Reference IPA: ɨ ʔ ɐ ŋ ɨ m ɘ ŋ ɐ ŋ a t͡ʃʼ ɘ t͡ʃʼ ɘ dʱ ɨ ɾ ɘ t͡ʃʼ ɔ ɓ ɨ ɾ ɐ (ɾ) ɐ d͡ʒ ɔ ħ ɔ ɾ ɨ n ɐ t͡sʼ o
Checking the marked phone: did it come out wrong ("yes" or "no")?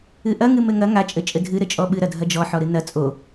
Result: yes